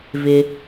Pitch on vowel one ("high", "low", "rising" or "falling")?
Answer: low